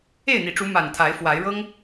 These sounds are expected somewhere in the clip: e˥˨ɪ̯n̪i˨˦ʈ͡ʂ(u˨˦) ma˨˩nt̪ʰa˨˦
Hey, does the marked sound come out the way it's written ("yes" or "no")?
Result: yes